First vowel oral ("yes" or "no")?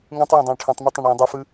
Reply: no